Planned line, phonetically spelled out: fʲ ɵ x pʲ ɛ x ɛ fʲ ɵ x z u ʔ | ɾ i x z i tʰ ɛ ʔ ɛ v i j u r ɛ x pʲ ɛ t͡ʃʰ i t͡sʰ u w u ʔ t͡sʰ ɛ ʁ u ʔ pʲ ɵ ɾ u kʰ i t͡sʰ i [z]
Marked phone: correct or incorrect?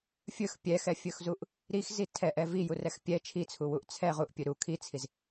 correct